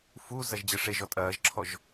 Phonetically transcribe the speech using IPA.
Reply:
f u z ɐ ʒ d͡ʑ ɘ ʂ e ʒ ɔ tʼ ɐː ʒ ǁʰ ɔ ʒ

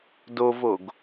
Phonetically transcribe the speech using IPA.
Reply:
d o v o ɡ

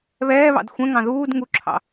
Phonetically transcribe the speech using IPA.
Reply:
β ɛː β ɑ̰ d xʷ ɛ̃ ŋ ɑ̃ ð uː d ŋ u ǁʰ ɑ̰

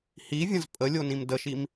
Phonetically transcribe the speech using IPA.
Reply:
h i vʲ ə̃ z pʼ ə lʲ o n ĩ m d ə ʃ i m

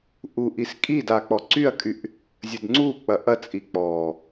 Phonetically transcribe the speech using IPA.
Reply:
ʔ u ʔ i s kʼ i d a k͡p ɔ ǀ y ɐ̯ kʼ y ʔ | zʲ ə d ŋ͡ǀ u k͡p ɐ ʔ ɐ t͡sʼ i k͡p ɔ

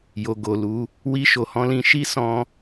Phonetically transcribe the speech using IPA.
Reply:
j o˨ ɡ o˨ l u˨˦ | w i˧ ʃ o˨ h ɔ̃˧ l ĩ˧ ʃ i˦ s ɔ̃˧

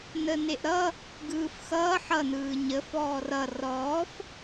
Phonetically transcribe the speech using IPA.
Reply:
n ə n e ʔ ɾ ʌ | ɡ ɯː f x ʌː ħ ʌ n ɯː ɲ ə f ɔː r ʌ r ɔː f

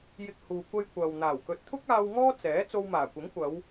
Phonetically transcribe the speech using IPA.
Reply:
j ɪ˧ k̚ h uː˨ kʷ ɐ˧ j kʷ ɐ˨ w n̪ aː˨˩ w k ɵ˨˥ t̚ t̪ʰ ʊ˥ k̚ aː˧ w ŋ ɔː˥ t͡s ɛː˨˥ t͡s o˧ w m aː˨˩ kʷ ɪ˨˥ ŋ kʷ ɐ˨˧ w

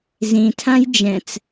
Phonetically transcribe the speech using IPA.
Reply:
z ĩ tʰ ã j d͡ʒ ɛ̃ t͡s

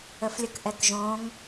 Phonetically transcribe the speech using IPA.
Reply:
ə f lʲ ə k ʔ ɛ k ʒ õ ŋ

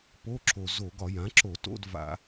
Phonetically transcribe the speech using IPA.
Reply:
p o˧˥˧ ǁ o˨˩ z o˧˩˧ ɡ ɒ˧˩˧ j ã˩˥ ǁ o˧˩˧ t o̰˧˥˧ d v a̰˧˩˧

